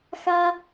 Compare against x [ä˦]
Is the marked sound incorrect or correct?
correct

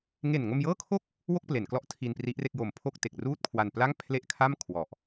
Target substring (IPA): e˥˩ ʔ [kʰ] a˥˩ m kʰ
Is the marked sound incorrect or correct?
correct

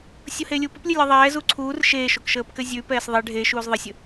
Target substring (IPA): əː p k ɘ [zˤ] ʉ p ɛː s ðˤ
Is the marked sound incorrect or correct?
incorrect: zʲ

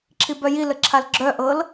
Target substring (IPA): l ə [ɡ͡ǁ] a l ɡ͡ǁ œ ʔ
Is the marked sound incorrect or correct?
incorrect: ǁʰ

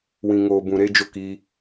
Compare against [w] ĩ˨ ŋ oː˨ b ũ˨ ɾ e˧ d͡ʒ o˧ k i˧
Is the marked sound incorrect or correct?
correct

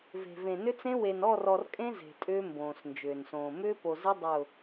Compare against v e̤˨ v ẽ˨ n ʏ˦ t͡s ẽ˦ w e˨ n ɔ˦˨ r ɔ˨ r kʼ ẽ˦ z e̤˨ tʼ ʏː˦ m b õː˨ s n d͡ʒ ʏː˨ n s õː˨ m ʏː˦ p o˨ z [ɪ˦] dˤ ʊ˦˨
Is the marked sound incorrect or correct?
correct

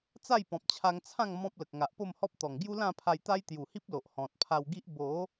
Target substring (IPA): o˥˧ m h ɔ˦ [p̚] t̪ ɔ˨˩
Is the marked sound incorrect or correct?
correct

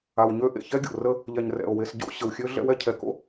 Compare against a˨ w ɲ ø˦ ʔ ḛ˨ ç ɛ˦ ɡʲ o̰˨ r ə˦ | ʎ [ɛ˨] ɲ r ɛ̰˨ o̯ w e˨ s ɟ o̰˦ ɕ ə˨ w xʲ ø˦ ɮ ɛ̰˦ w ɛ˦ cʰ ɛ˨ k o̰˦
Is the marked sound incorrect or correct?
correct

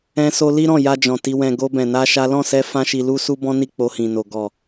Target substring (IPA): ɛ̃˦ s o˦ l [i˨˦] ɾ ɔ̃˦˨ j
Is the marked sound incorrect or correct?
incorrect: i˦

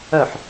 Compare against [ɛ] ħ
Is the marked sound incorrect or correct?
incorrect: œ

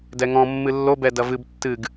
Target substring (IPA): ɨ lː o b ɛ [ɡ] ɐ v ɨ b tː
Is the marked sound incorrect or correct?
incorrect: d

